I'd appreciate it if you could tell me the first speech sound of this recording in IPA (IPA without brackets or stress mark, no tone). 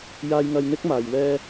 j